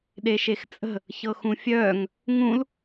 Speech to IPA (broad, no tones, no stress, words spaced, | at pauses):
ɗeʃext͡sʼə̤ | çɤxũfʲœːŋ | ŋũl